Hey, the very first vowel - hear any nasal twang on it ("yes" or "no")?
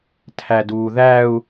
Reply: no